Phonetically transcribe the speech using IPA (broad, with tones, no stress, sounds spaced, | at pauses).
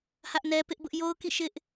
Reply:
h ä˦ ʔ n ɛ˦ p ɪ˦ ʔ b ʊ˦ ʔ j o˦ ʊ̯ k ḭ˦˨ ʃ ɪ˦ ʔ